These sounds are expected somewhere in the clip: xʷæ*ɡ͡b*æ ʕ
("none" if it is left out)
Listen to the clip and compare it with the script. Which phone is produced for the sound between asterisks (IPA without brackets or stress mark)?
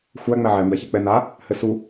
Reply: ŋ͡m